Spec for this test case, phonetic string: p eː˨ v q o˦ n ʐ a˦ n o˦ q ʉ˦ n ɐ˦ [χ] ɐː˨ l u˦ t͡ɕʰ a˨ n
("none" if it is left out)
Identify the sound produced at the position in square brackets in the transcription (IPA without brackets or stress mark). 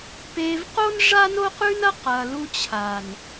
q